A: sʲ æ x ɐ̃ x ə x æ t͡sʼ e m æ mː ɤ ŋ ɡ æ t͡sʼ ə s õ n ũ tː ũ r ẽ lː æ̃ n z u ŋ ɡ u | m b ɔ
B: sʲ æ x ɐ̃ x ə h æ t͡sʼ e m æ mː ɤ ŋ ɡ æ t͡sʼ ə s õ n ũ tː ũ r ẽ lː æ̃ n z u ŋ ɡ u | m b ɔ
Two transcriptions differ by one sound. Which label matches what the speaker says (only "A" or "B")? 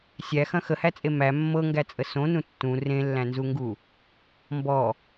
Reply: B